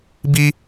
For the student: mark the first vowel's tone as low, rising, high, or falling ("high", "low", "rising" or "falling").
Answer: high